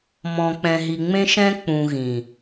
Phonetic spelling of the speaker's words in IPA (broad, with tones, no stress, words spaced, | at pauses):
mɔ̃˨k͡pɛ̃˨ɦi˨ ŋ͡mẽ˦ʃɛ̃˦k͡pũ˨ ɣĩ˨